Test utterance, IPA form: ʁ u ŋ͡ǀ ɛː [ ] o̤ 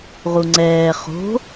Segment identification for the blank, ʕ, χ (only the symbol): χ